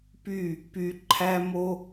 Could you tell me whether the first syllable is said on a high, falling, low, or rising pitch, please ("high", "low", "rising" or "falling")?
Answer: falling